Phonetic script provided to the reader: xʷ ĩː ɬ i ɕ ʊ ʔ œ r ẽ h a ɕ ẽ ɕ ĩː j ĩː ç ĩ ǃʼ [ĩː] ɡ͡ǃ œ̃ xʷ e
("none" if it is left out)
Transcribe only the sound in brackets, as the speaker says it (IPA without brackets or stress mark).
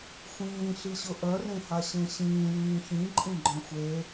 ĩ